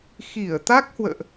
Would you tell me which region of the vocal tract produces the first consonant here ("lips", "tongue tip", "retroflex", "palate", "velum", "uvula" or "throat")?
velum